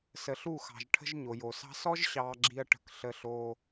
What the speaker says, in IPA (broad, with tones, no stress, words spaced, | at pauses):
sə˨ɬu˦˨xɑ̤˨ʒʈʰə̤˦ʒ ɲo˨jo˨sɑ̤˦ sɔ˦ʒɕɑː˨ɡ͡ǁi˨ɐ̯ ʈə̤˨kɬə˨ ɬoː˦